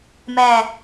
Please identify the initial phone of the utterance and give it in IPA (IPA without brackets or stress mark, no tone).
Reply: m